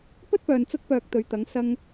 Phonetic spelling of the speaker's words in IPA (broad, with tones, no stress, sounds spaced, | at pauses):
p ɵ˥ t̚ p œː˨ n t͡s ʊ˥ k̚ p œː˧ k̚ t̪ ɵ˨˧ ɥ t̪ ɐ˨˥ ŋ s ɐ˧ ŋ